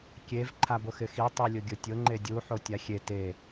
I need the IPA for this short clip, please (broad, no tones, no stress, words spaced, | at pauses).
kʲev ǃʰabʊxɪxi tˤilʲʊɡʲʊtʲʊ ŋ͡ǃedʲu ħotʲaxʲe te